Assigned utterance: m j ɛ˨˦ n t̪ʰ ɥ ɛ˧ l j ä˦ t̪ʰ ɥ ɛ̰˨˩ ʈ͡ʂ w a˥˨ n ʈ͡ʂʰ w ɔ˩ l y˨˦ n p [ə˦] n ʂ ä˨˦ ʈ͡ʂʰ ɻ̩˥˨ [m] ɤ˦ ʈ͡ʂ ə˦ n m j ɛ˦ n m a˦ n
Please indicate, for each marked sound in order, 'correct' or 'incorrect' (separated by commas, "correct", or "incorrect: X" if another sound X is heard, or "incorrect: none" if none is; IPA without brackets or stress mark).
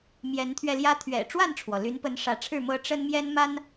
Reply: incorrect: ə˨˦, correct